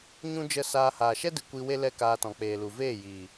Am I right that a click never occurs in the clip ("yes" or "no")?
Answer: yes